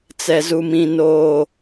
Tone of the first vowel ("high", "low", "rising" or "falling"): low